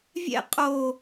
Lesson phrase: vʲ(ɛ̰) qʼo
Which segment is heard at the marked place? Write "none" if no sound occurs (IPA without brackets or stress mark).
ɛ̰